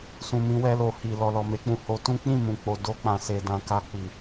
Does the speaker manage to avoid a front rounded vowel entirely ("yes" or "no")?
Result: yes